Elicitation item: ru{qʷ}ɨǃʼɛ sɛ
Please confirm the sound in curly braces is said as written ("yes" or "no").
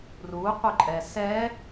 yes